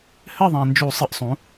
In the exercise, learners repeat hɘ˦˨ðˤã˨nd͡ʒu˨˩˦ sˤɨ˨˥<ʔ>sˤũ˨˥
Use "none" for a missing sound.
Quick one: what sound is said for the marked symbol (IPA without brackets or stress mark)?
ʔ